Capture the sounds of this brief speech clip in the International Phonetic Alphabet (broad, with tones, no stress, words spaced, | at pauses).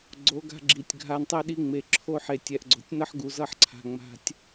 ɡ͡ǀo˨˦ɡa̤˧ ɡ͡ǁi˨tʲɡʱa˧ntˤɛ˦ɗi˧ ŋ͡me˨ ǁʰo˧ ħe˨tʲɛ˨ʔ ɡ͡ǀo̤˨tʲnʌ˦ħ ɡu˨zʌ˦˨ħǀʰa̤˨ ŋ͡ma̤˨tʲ